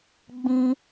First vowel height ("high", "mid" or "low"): high